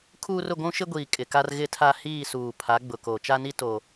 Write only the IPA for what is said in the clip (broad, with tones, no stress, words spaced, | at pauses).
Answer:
kʰuː˦rʊ˦˨ ɡʷũ˦ʃɪ˦ɡʷiː˨ kʼɪ˨ka˦r ɣɪ˦tʰa˦ hiː˦˨suː˨ pʰa˨˦ɡ͡bʊ˨ ko˨ t͡ʃa˦ni˦ to˦